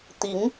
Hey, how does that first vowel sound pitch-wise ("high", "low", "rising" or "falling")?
rising